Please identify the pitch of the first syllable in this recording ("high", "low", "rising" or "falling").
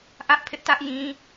high